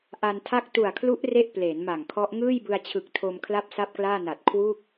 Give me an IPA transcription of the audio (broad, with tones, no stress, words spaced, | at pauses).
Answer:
ʔa˧ntʰa˥˩k̚ tu˨˩a̯kʰlu˦˥ʔ re˥˩ʔpleː˩˦nma˨˩ŋkʰɔ˦˥ʔ ŋɯː˥˩jbɯ˧a̯t͡ɕʰɯ˨˩k̚tʰo˧m kʰla˥˩p̚sa˥˩p̚klaː˥˩na˨˩t̚ kʰwu˥˩k̚